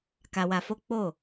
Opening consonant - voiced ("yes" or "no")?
no